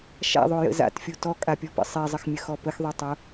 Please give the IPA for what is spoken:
ʃ a̰ ðˤ o j ə̰ z a̰ t fʲ o t ɔ kʼ a pʲ ɔ p ə̰ sˤ e zˤ ə x mʲ ə x ɔ p ə x ðˤ y tˤ o

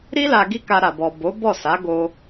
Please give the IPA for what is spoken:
ɾ i˦ l a˧ ɡ i˦ k a˧ ɾ a˨ b ɔ˨ b o˨˦ b ɔ˦˨ s a˨˦ ɡ o˧

